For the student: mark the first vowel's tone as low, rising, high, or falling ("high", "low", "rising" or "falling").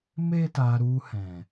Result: high